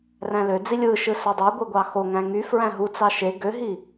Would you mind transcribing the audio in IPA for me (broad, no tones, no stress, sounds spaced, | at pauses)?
r æ̃ l ø d͡z i lʲ ɯ ʃ ɯ s ø dˤ ø ɡʷ ɯ ɡʷ ɑ x o ŋ æ̃ ŋ y f ɹ æ̃ ɦ u t͡s ɑ ʃ e ɡ ø ɦ i